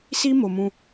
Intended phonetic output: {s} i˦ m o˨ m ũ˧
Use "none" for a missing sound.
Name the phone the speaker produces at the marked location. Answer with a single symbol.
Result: s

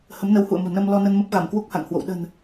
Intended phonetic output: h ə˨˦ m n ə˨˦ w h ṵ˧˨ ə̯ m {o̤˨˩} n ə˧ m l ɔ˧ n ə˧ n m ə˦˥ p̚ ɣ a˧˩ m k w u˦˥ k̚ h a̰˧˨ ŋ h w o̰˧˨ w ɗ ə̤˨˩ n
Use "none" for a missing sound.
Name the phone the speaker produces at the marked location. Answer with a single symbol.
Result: o̤˨˩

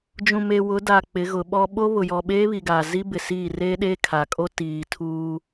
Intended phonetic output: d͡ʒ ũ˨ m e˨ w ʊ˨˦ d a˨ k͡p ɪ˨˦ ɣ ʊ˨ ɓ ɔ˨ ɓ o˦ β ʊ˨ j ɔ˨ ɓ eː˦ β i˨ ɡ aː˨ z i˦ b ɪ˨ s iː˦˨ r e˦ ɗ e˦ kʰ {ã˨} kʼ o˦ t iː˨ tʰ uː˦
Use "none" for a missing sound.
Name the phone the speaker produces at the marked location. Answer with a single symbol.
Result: a˨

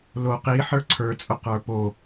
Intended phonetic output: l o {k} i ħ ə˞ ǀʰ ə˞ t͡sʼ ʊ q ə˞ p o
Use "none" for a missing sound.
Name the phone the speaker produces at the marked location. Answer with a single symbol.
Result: q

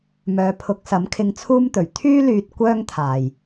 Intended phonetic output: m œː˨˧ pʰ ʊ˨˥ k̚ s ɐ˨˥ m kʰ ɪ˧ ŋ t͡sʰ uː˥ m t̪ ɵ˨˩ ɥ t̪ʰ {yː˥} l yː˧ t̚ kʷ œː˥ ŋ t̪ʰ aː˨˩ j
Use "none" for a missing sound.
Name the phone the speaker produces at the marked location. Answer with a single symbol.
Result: yː˥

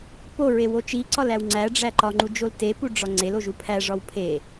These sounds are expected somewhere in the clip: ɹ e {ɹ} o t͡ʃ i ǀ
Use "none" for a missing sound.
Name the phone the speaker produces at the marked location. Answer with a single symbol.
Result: w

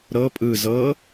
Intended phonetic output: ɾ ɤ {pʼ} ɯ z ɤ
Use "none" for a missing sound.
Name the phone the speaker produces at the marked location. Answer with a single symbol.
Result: pʼ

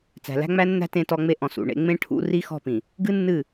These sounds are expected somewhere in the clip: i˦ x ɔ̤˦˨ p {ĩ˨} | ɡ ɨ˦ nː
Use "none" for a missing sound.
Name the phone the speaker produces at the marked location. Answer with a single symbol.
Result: ĩ˨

